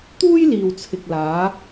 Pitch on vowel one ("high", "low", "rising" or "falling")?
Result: high